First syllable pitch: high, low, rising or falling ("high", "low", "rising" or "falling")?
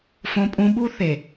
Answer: high